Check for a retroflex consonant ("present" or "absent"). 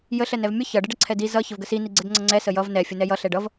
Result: present